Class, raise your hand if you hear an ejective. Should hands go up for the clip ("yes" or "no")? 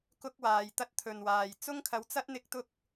no